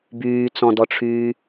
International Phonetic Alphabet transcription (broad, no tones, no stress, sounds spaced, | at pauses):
b yː t͡s ɔ̃ d ɔ ʈ͡ʂʰ yː